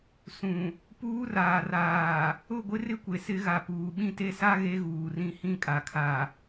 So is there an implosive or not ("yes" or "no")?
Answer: yes